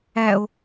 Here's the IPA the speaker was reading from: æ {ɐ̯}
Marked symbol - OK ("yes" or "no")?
no